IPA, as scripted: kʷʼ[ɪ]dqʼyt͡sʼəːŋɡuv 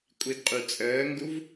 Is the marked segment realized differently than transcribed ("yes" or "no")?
yes